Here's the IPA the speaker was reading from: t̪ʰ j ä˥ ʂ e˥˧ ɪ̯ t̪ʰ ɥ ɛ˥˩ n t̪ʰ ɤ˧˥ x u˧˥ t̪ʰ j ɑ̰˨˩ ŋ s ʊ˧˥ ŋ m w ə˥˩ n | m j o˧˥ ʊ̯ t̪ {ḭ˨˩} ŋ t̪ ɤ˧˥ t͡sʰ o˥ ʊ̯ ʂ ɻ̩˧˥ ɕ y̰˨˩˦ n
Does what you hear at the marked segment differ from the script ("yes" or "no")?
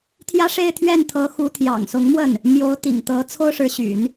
no